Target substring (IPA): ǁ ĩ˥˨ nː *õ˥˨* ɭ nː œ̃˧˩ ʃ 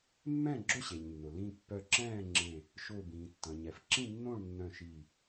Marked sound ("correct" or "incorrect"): correct